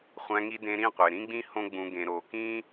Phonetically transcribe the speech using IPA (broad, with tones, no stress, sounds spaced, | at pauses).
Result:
χʷ æ̃˧ ŋ i˧ d ẽ˧ ɾ ĩ˦˨ qʷ e˨ ɾ ĩ˦ ɡ͡b ĩ˦ h õ˦ ɡ͡b ũ˧ ɡ ẽ˧ ɾ oː˧ k ĩː˦